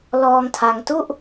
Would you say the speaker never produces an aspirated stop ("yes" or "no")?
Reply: no